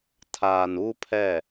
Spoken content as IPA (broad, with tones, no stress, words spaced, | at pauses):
tʰaː˨n uː˦pʰɛ˦˨